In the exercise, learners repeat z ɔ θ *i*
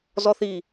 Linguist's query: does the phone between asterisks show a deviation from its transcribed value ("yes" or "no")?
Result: no